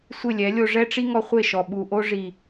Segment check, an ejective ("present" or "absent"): absent